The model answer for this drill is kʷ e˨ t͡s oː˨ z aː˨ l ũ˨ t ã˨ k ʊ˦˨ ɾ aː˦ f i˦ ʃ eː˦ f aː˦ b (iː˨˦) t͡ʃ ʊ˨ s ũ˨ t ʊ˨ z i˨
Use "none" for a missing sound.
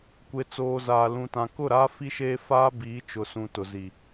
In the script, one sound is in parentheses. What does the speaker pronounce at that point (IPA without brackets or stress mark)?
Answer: iː˨˦